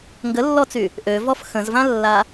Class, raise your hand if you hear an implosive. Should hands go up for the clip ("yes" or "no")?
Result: no